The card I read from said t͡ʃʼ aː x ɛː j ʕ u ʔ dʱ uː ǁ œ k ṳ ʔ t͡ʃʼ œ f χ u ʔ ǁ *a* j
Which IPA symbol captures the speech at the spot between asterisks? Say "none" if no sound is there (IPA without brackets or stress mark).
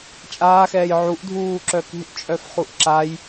a